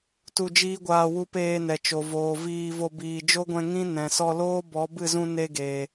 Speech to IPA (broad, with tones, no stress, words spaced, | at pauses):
tu˧d͡ʒiː˦ɡʷaː˧wu˧ peː˧nɛ˨t͡ʃo˨voː˨ viː˧vo˧ biː˨d͡ʒo˦ɡʷɛ̃˧ ŋĩ˦ nɛ̃˨sɔ˧loː˦ bɔ˨˦bɨ˦˨zũ˧ ne˧ɡe˨